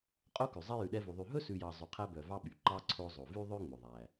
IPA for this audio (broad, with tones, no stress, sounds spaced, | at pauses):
qʼ o˥ k ʉ˩ zˤ ɛ˥ j ʉ˨ ɗ ɛ˦ v u˨ ðˤ y˨ ɦ ɵ˥ s ʉ˨ j ɑ˨ zˤ y˨ qʰ æ˦ b œ˨ v ɑ˥ ɓ y˩ ǃ ɑ˥ ǀʰ o˦ zˤ o˨ v y˥ ðˤ ø˥ ŋ͡m ɵ˩ ðˤ æ˩